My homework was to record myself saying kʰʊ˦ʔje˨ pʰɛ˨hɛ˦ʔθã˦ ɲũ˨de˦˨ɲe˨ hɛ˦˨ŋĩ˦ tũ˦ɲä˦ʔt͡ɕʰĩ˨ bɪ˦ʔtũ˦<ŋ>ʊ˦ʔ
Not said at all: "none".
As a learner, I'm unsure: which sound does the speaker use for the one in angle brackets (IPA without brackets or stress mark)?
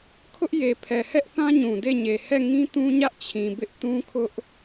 kʰ